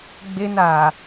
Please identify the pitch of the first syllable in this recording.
high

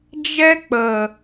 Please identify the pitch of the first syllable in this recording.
high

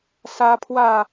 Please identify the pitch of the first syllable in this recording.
high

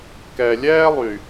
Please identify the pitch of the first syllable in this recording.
low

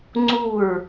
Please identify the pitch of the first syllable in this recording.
falling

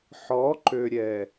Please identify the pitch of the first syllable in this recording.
rising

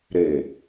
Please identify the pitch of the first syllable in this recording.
low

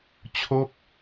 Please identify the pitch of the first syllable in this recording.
falling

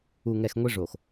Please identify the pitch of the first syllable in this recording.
low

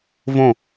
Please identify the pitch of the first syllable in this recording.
falling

